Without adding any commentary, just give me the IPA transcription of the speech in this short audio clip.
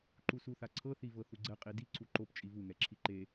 ǃ u s u θ a ǀʰ ɤ θ i v ɤ θ u ɡ͡ǀ ɛ qʼ i d i ǀ u ǃ o p t͡ʃʼ i v u ŋ ɛ ǁʰ i ǃ e

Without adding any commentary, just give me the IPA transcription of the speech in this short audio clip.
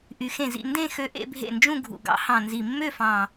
ʔ y˨˩ x ẽ˥˩ z ḭ˥˧ n d ẽ˥˧ x ø˧˥ ʔ ḛ˥˧ bʱ ḛ˥˩ n d͡ʒ ũ˥˧ ɡʱ ṵ˨˩ ɡ ɑ̰˧˥ h ɑ̃˨˩ n z i˨˩ mː ø˥˧ f ɑ̃˨˩

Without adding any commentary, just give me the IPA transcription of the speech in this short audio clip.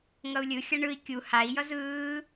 ŋ ʌ u̯ lʲ ɯ xʲ ʌ ɳ ɯ i̯ kʲ u h a i̯ j ʌ z ɯː

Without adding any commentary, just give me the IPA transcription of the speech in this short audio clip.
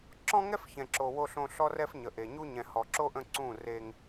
ǁ ɔ̃˦ ŋ ɛ˦ f ç ɛ̃˨ ǁ o˨ w o˨ ɬ õ˨ ɬ ɔ˦ r ɛ˦ f ɲ ə˨ ʔ e˨ ɲ u˦ ɲ ɛ̃˨ h ɔ˨ ǁ o˦ ʔ ə̃˦˨ ǀ ũ˦˨ r e˦ ŋ

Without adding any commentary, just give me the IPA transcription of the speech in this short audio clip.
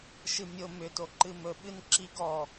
ʃ ɨ mʲ ʊ m ʏ t o ǃ ɨ m ɵ ɓ ɨ n ǁ i ɡ ɔ

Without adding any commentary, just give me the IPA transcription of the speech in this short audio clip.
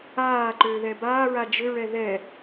aː ǃ ʏː ð ɛ b aː ɹ a d͡ʒ ʏ ɹ ɛ ð ɛ

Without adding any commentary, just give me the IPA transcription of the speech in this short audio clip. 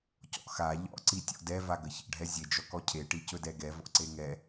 c ɔ̰ x a ʎ ɔ̰ ǀ i tʲ ɔ̰ d ɛ v a ɡ ə ç ə̰ ɖʱ ɛ zʲ e d͡ʒ ɔ k ɔ cʰ e ʈ i c ɵ d ɛ ɡ ɛ v ɔ̰ ǀ e ŋ ɛ

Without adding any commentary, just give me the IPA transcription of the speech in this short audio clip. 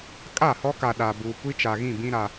kʼ a˦˨ h ɔ˦ k a˨ ɗ a˨ b uː˨ kʷ i˦ t͡ʃ a˨ ɣ ĩ˦˨ b ĩ˦ ɾ a˨

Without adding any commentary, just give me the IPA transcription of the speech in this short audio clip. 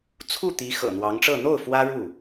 t͡sʰ u˥˩ t̪ i˧˥ x ɤ̰˨˩ n̪ w ɑ˧˥ ŋ ʈ͡ʂ ɤ˥˧ n̪ o˥˩ ʊ̯ f w ä˥ ɻ u˥˩

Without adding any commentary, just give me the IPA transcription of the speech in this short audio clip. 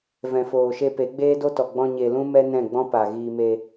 v ɛ̃˨ f oː˨ ʃ e˧ p e˨˦ ɡ͡b eː˦ d o˦ t ɔ˨ ɡ͡b ɔ̃˧ ɲ e˨ l ũ˦ m ɛ˦ n ɛ̃˦˨ ɡ͡b ɔ̃˦ p a˨ ɣ iː˧ m e˧

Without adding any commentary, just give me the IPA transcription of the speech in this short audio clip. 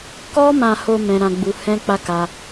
k ɔ˦ m ã˧ h o˧ m ɛ̃˦ ɾ ã˦ ɡ͡b u˦ h ɛ̃˦ k͡p a˦ k a˧

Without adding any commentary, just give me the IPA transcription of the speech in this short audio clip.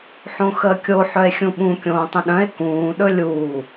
ħ õ x əː kʲ o ħ œ e̯ xʲ ũ ɓ ũ kʲ õː tˤ ə̃ ɗ œ̃ e̯ k ũː ɗ ɵ lʲ uː

